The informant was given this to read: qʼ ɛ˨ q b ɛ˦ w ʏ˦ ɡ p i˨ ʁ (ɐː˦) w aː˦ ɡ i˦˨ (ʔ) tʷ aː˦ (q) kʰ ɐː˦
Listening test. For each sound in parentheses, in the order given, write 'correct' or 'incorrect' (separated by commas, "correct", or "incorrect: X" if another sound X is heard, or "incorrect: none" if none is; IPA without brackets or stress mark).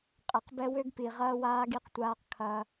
correct, incorrect: q, correct